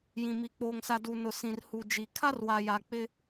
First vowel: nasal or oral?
nasal